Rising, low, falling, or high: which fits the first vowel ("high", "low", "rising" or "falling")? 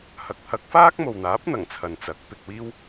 rising